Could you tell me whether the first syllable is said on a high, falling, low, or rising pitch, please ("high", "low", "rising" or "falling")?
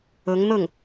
rising